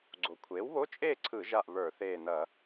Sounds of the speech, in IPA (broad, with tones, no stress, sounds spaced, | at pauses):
ɡ͡ǀ o˩ kʷʰ eː˩˥ w β o˧˥˧ t͡ʃʼ eː˥˨ ǀʰ ɯ˧˩˧ ʒ a˧˩ ʔ β ə˞˧˩˧ θ eː˧˩ n ɐ˧˩˧